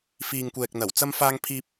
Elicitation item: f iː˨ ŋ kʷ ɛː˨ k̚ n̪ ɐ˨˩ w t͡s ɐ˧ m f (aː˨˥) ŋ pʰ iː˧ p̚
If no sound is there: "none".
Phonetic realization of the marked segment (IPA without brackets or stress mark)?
aː˧